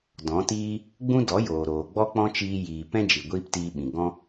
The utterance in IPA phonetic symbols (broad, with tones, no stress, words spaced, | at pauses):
dɔ̃˨˦tiː˦ | ɡ͡bũ˦dɔ˨˦joː˨ ɾoː˨ɡ͡bɔ˦k͡pɔ̃˦t͡ʃiː˧ jiː˨pɛ̃˦ d͡ʒi˨ɡʷiː˦ptiː˧ ɓĩ˨ ɡɔ̃˦